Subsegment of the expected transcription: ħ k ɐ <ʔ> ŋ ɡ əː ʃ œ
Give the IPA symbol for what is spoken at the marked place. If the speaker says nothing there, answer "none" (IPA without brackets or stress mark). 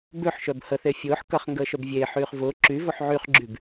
χ